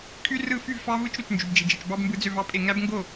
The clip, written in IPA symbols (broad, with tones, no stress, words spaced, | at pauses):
kʰy˦˥ rɯ˥˧ fy˥˧vfɑ˦˥vɯ˦˥t͡ʃ ɾu˥˧t͡ʃ nd͡ʒy˦˥bd͡ʒi˦˥d͡ʒi˦˥t͡ʃ bɑ˦˥bmbɯ˦˥d͡zø˥˧v ɑ˦˥pʼe˥˧ ŋæ˦˥bŋɡo˥˧